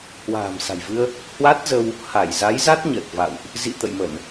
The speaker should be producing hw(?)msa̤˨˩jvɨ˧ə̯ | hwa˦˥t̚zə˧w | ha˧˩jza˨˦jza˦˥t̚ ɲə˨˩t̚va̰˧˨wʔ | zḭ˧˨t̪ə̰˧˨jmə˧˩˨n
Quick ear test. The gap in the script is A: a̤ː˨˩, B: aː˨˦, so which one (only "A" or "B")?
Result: A